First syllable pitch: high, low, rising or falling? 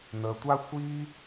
low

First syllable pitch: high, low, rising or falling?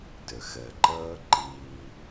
low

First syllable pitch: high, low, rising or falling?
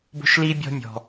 high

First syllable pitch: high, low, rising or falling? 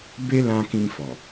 high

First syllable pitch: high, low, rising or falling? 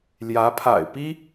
rising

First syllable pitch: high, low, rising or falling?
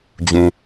low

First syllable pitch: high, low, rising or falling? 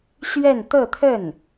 falling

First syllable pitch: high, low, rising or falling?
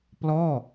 falling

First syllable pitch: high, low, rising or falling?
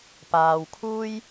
low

